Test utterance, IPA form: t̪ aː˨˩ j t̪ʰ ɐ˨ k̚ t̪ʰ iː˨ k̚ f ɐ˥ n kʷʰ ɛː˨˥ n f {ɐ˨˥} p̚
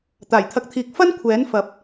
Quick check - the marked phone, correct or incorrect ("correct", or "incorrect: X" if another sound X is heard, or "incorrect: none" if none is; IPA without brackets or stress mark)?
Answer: correct